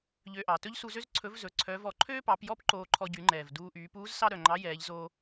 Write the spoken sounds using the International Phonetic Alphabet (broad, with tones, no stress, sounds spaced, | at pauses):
ʎ ø˧ ʔ ɑ˩ t ɵ˥ ʎ s u˧ z ø˥ z ǀʰ ɵ˧˥ v z ɵ˩˧ ǀʰ œ˧˥ v ɔ˧ ǃʰ øː˥ p ɑ˩˧ p j ɔ˥ p ǃ oː˧ ǃʰ ɔ˧ ɟ y˩˧ ŋ͡ǃ ɛː˩ v d uː˧ ʔ yː˩˧ p uː˧˥ z s ɑ˥ ɾ œ˩ ŋ͡ǃ ɑ˧˥ j ɛː˩˧ ʎ z oː˧